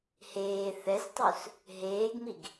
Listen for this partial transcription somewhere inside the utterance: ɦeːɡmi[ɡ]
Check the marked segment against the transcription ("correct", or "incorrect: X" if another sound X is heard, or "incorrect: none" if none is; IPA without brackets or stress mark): correct